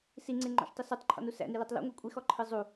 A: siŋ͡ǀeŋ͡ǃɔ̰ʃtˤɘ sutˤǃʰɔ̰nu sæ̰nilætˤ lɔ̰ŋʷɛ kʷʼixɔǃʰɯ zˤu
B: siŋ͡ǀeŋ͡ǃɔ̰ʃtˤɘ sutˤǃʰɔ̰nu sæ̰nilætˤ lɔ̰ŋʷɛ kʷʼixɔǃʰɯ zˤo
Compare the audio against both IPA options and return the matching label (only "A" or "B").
A